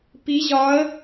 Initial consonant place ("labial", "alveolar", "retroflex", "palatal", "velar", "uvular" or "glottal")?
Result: labial